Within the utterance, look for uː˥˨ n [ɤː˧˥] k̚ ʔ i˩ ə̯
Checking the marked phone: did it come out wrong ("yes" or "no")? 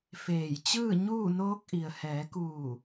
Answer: yes